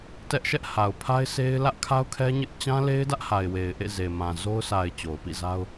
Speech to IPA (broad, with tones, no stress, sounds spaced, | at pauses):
t ɛ˦ ʔ ʃ ɛ˦ ʔ h a˨ ʊ̯ pʰ a˦ ɪ̯ sʰ e˦ ɪ̯ l ä˦ ʔ kʰ a˦ ʊ̯ kʰ ɛ˦ ɲ ɪ˦ ʔ t͡ɕ ã˦ l e˦ ɪ̯ d ä˦ ʔ h a˨ ɪ̯ w e˨ ɪ̯ ʔ ḛ˦˨ z e˨ m ã˨ z o˦ ʊ̯ sʰ a˨ ɪ̯ t͡ɕ o˨ ʊ̯ p ḭ˦˨ z a˦ ʊ̯